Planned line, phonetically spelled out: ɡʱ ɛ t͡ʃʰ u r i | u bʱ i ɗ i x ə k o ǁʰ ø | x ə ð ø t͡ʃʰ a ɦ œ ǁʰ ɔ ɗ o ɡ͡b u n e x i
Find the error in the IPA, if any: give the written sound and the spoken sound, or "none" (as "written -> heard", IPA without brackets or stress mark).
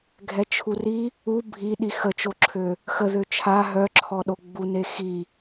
k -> t͡ʃ